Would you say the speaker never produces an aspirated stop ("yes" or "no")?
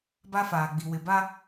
yes